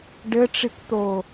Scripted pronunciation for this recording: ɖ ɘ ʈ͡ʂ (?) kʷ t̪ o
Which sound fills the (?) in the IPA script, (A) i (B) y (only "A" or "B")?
A